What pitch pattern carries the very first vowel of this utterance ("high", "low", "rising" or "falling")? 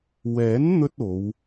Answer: rising